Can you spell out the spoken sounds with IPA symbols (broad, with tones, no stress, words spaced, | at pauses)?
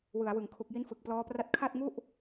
wɯ˩˦a̯wɯ˩˦ŋ kʰu˨˩k̚ji˦˥n fɯ˨˩k̚plɔː˦˥pra˥˩t̚ kʰa˥˩t̚ŋu˥˩ʔ